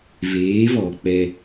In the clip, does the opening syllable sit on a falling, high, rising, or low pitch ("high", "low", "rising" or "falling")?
rising